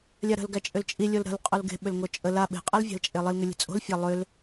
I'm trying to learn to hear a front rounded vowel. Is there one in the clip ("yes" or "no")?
yes